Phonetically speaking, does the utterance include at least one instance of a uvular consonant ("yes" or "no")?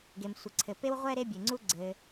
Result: yes